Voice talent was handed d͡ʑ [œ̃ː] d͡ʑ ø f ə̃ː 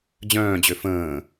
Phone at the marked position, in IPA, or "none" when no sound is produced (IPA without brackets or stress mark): œ̃ː